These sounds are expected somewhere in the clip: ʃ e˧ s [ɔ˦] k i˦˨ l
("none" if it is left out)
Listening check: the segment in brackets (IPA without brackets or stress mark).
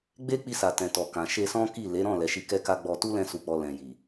ɔ̃˦